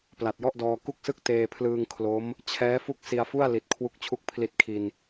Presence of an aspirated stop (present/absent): present